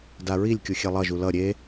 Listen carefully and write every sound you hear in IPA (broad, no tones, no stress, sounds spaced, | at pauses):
d a ɹ i lʲ kʲ u xʲ e lˠ ʌ ʒ u l ʌ ɾʲ e